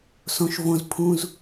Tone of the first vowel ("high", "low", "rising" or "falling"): low